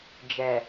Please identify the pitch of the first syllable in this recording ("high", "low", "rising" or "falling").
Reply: low